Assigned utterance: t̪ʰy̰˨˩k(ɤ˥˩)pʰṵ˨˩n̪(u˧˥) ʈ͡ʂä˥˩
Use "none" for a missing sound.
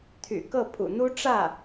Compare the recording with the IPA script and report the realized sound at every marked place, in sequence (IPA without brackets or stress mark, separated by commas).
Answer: ɤ˥˩, u˥